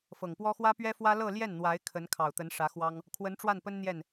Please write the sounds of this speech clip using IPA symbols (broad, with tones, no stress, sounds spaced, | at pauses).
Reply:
f ɤ˨˩ ŋ p w ɔ˥ x w ä˥ p ɥ ɛ˥ f w ä˥ l ɤ˥˧ l j ɛ˥˩ n n̪ w a˧˥ ɪ̯ kʰ ə˧˥ n kʰ ɑ˨˩ ʊ̯ t̪ ə˧˥ n ʂ ä˧˥ x w ɑ˥ ŋ | kʰ w ə˧˥ n ʈ͡ʂ w a˥˩ n p ə˥ n n̪ j ɛ˥˩ n